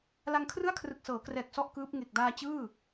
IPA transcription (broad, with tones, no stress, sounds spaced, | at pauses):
l a˧ ŋ kʰ r ɯ˥˩ a̯ kʰ r ɯ˨˩ k̚ s ɤː˩˦ k r ɛː˨˩ k̚ s ɔ˥˩ ʔ k ɯː˦˥ p̚ ŋ e˨˩ k̚ d aː˧ t͡ɕ ɯː˥˩